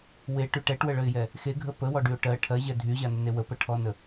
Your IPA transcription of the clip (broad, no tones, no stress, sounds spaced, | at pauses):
w e ʈ y ʈ ɛ ʈ w ə ɭ ə ɪ̯ j ɛ | x e ɡʱ ə p ə w ɔ ɖ y ʊ̯ ʈ ɜ ʈʰ ɜ ʑ ɛ dʱ y ʑ a n ə n e w ə p ə ʈʰ ɔ n ə